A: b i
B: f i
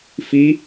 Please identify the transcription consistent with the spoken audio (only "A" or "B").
B